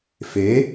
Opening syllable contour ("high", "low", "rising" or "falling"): rising